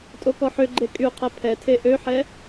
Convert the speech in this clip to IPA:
tʼ o k ɔ ħ ø ɡ͡ǃ e kʼ y qʰ ɛ pʰ ɛ tʰ e ʔ ø ħ ɛ

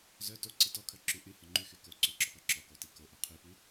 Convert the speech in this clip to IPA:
z œ t o ǀ i t ɔ kʰ œ ǁ y ʔ y h œ ŋ͡ǃ y x y k o ǀ o ǁ ɔ p œ ǁ ɔ k o t i k o ʔ o qʰ y p y

